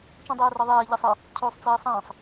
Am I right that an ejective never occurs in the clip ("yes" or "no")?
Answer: yes